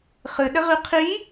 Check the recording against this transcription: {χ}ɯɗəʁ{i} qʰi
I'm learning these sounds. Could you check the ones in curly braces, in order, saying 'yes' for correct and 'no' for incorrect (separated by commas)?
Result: yes, no